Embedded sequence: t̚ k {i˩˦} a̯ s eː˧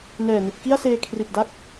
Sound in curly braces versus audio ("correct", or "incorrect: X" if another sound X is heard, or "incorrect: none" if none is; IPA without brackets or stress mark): incorrect: i˥˩